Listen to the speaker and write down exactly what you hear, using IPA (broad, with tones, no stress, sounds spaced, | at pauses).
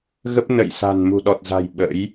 ɣ ə˦˥ p̚ n ə̰˧˨ j s a̤˨˩ n m ṳ˨˩ ɗ ɔ˨˩ t̚ z a̤˨˩ j ɓ ə̰˧˥ j